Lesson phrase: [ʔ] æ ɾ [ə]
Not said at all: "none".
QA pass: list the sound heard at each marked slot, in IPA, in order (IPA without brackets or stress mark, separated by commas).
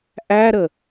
ʔ, ə